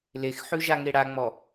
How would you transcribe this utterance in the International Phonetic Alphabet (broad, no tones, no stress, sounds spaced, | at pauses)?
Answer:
l e x ħ ʉ ʒ a ŋ e ɽ a ŋ͡m ɔ